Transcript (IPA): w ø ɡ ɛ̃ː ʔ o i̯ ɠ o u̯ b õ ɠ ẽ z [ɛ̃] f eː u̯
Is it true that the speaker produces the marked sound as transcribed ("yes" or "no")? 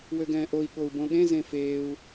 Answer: no